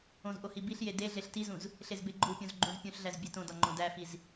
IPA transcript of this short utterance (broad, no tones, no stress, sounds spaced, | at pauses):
õ z ʔ o h i b i ɬ j e d e ɮ e ɬ t i z ũ z | ɬ e z b e ɡ͡ǃ u pʲ õ z ɡ͡ǃ ũ z pʲ ũ ɬ ɮ æ z bʲ e t õ d ɒ ŋ͡ǃ õ d æ f i z